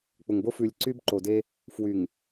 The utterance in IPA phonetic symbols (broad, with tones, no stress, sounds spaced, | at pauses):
k͡p ʊ˨ ŋ b o˦ f ʉ˨ lʲ ǀ y˦ b ǃ o˨ d e˦ | f w y˨ ŋ